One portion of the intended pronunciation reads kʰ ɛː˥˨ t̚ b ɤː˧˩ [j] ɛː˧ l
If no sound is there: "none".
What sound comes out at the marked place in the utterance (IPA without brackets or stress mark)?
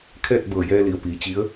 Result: j